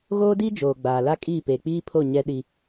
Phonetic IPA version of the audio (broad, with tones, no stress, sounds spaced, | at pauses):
ɣ oː˦ d i˦ d͡ʒ oː˨ ɡ͡b aː˨ l a˦ kʼ i˦˨ p e˨ k͡p iː˦ pʰ o˦˨ ɲ ɛ˦ ɗ i˦